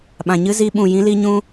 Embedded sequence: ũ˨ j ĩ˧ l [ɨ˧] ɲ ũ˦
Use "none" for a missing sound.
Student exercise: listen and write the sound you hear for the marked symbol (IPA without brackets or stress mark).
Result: i˧